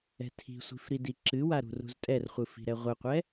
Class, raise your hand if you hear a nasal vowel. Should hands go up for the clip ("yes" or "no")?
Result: no